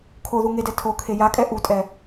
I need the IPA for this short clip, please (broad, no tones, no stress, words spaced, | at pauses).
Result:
kʰoðu ŋedɛ tʰokʰe jakʼɛ ʔutʼɛ